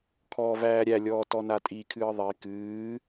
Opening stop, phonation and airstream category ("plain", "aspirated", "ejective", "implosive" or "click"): aspirated